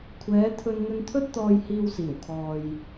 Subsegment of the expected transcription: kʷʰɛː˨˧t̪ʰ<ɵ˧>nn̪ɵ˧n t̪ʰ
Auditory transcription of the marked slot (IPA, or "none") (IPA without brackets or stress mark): ɵ˧